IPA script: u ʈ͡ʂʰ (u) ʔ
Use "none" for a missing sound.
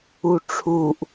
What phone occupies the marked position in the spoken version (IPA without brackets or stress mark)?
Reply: u